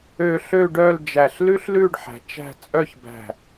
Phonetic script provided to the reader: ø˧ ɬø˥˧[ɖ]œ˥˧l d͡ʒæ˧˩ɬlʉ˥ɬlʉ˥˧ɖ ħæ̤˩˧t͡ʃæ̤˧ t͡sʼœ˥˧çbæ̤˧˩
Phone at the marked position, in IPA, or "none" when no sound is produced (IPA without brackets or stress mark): ɖ